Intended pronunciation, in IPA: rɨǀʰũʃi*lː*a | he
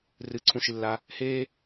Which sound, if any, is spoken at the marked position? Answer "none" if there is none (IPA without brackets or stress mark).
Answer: lː